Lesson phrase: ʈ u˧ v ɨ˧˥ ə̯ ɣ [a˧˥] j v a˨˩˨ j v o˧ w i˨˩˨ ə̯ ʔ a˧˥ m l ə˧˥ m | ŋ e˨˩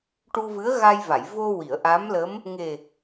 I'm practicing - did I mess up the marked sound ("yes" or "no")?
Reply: yes